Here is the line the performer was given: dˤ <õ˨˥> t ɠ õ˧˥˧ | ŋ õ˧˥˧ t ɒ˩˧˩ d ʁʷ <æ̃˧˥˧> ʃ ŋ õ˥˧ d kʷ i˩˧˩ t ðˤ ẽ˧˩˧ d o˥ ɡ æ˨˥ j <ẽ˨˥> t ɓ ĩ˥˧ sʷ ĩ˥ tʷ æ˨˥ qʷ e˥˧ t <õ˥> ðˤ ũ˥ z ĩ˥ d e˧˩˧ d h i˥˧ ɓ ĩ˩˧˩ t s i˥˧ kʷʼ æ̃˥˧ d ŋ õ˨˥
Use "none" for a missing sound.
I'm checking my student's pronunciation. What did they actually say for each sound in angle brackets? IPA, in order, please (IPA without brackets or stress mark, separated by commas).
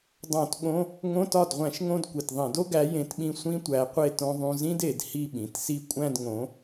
õ˧˩˧, æ̃˧˩˧, ẽ˨˥, õ˥